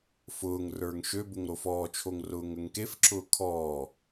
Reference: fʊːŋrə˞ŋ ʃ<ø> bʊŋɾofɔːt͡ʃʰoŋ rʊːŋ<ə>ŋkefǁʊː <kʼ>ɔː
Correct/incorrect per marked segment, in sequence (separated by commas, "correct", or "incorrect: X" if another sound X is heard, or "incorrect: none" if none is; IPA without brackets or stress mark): correct, correct, incorrect: kʰ